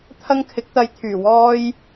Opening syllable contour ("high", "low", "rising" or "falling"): high